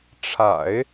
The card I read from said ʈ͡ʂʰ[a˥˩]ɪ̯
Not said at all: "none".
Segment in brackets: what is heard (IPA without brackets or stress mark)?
a̰˨˩˦